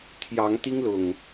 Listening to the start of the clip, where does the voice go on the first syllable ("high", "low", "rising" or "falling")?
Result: rising